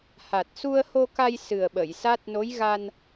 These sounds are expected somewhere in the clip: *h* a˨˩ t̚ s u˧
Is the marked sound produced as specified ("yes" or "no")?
yes